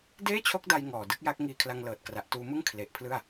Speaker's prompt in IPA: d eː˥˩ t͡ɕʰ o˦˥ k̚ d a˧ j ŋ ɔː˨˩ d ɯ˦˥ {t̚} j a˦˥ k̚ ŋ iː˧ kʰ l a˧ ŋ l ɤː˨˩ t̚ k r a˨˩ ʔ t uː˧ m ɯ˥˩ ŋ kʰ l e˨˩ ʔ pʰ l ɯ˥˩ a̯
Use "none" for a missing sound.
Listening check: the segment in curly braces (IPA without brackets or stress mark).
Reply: k̚